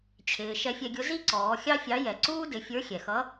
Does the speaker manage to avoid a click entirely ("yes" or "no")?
no